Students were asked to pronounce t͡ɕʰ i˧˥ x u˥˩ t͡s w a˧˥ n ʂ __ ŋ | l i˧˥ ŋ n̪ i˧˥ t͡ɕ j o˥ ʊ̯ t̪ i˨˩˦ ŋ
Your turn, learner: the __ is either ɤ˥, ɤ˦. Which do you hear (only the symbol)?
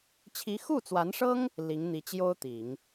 ɤ˥